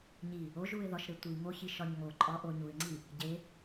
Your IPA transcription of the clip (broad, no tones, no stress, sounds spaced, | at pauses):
ɲ i | o ʒ u ɪ̯ ð ɒ ʃ ɾ e tʷ i ŋ o ç i ʃ ɒ ɲ ŋ o ǃʼ ɒ ʔ o ɲ u ɪ̯ ŋ͡ǀ i | ɟ e